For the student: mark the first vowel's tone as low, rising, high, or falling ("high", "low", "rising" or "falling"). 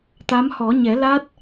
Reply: rising